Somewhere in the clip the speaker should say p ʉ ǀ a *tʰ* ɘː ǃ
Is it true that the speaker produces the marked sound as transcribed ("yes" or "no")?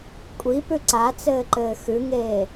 no